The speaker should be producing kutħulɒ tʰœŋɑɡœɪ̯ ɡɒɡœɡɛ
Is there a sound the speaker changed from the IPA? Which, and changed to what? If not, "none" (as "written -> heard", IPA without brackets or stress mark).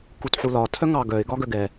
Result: none